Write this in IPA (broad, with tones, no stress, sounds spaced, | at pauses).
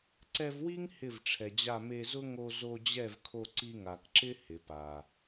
ǀ ɛ˧ v w i˦ ŋ h ɪ˦˨ v ʈ͡ʂʰ ɛ˨ d͡ʑ a˦˨ m e˧ z ʊ˦ ŋ o˧ z o˧ d͡ʑ ɛ˦˨ v kʰ o˧ ǀ i˧ ŋ a˨ k ǁ ɪ˦ h ɪ˨ p a˨